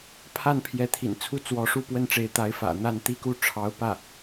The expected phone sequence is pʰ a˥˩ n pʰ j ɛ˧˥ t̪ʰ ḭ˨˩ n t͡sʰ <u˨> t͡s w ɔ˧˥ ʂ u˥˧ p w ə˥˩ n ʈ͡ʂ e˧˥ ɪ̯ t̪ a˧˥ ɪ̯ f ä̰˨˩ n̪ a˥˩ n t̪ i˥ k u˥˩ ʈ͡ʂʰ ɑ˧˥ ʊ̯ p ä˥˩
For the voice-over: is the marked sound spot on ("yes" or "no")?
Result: no